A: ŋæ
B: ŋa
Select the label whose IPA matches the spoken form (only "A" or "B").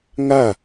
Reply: B